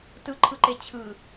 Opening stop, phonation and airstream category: plain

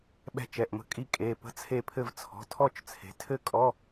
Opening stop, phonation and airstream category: implosive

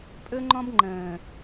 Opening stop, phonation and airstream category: ejective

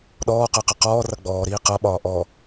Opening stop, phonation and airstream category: implosive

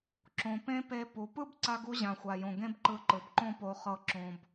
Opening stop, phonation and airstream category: click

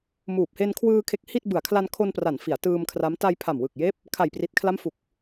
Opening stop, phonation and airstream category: plain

